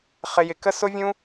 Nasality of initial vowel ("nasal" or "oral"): oral